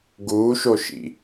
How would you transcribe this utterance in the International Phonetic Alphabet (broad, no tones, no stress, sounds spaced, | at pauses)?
ɡ uː ʃ o ʃ ḭ